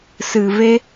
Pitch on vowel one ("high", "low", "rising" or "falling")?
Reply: low